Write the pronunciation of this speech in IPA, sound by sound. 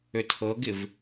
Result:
ø tʰ ɤ ɡ ɪ v

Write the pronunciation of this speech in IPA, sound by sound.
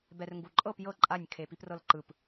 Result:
b ɛ r ŋ ɡ u ǃʼ ɤ p j ɤ ǃʼ a nʲ kʰ e p i p r ɤ l ǃ ɯ p

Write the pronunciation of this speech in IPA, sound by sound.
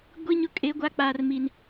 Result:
ɡʷ i˦ ɲ ʊ˦ kʼ e˦ ɡʷ a˦ k͡p aː˦ r m i˦ n

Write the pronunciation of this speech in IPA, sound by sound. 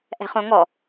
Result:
ʔ ɛ̤ χ õ ŋ ɔ

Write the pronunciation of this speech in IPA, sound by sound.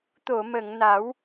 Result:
t̪ o˨˩˨ m ə˨˩˨ ŋ n a˨˩˦ w

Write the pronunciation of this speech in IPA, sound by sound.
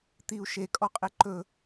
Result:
t̪ i u̯ ʃ e kʼ ɔ qʼ e ǃ ɵ

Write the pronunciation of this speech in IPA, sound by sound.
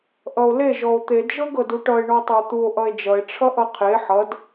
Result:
ʔ ʌ o̯ l e ʒ ɔ o̯ t̪ e d ʒ ɤ ɡ ɤ d u ʈ ʌ e̯ ɳ ɔ tˤ ʌ o̯ t̪ u o̯ ʔ ʌ e̯ d͡ʒ ʌ e̯ ʈ͡ʂʰ ʌ ʔ ʌ qʰ e ħ ʌ d

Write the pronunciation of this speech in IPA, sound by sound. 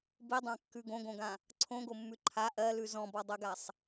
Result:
b i dˤ ã kː ʉ ɡ õ ɡ õ ɡ ã | ǀʰ õ ɡ o mː ʉ ǃʰ a ʔ ɜ l ʉ z ɔ̃ b ɔ dˤ ɜ ɡ a sˤ

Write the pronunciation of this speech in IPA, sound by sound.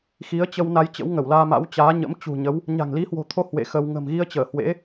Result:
x i˨˦ ə̯ t͡ɕ ə˧ w n a˧ j t͡ɕ ə̰˧˥ w ŋ ə˧˩ w l aː˧ m a̰˧˥ w t͡ɕ aː˨˦ ɲ ə̰˧˥ m t͡ɕ ṳ˨˩ ɲ ə˨˦ w | ɲ a̤˨˩ ŋ l i˨˦ h w o̤˨˩ t̪ʰ o˧ h w ḛ˧˨ x ə˧ w ŋ ə̤˨˩ m ɣ i˧ ə̯ t͡ɕ əː˧˩ h w ḛ˧˥

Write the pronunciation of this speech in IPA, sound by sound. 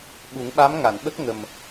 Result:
ɓ u˨˩˦ ŋ ɓ a˧˥ m ŋ a˨˩˨ n ɓ ə˦˥ k̚ ŋ ə˨˩ m

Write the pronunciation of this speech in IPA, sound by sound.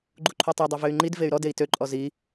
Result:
ɡ͡ǃ u ǃʰ u tˤ i dˤ y v ø y̯ ŋ͡ǃ i d v e y̯ ɾ ɔ d e i̯ t ø ǃʼ ɔ z i

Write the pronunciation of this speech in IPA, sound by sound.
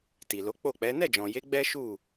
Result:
t i˨ l o˨˦ k͡p o˦˨ k͡p ɛ˨˦ n ɛ˦˨ d͡ʒ ɔ̃˨ j e˨˦ ɡ͡b ɛ˦ ʃ u˦˨

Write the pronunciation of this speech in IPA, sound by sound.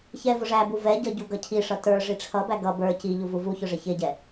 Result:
ç ɛ v ʊ ʐ æ b u v ɛ ɟ ʌ ɟ u ɡ ʌ cʰ i ʂ ʌ t ə˞ ʐ i ʈ͡ʂʰ ʌ b æ ɡ ʌ b ə˞ c i ʎ u v u v u ç ʊ ʐ ɪ ç ɪ ɟ ɛ

